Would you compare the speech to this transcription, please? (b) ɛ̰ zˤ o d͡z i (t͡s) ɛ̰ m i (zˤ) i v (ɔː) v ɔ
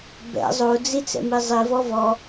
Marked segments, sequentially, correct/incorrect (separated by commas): correct, correct, correct, incorrect